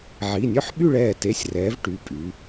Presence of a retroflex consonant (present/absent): present